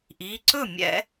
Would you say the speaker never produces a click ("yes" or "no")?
no